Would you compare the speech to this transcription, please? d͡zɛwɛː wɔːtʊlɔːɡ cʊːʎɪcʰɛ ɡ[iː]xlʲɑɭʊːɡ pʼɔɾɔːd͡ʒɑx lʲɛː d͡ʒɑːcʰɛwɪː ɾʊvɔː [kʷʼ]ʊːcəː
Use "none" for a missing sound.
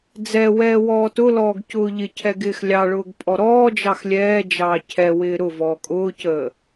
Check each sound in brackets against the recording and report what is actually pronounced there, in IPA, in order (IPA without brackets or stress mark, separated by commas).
ɪː, kʼ